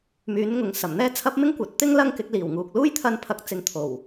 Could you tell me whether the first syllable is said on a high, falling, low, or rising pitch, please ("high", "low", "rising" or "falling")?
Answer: rising